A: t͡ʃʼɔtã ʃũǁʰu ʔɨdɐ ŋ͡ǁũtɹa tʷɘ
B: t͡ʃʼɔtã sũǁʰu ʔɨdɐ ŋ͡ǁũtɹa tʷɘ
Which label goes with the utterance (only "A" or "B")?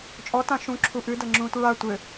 A